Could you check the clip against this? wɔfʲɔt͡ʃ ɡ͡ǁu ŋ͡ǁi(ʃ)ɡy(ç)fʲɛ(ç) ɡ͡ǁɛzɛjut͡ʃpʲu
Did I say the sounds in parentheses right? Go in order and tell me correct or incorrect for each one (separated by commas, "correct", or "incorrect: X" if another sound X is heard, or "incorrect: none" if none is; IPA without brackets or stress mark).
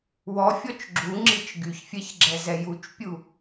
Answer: incorrect: t͡ʃ, correct, correct